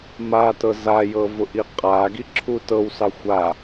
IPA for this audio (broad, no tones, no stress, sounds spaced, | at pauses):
m a t ɤ z a j ɤ v ʊ ʔ i qʼ a ɡ i ǁʰ u t ɤ w s ɑ xʷ a